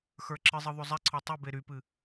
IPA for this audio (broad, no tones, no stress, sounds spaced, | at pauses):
x ə˞ ǁ ɨ zˤ ɨ ðˤ o zˤ ɛ ǀʰ ɔ tˤ y b e ɾ y p ɨ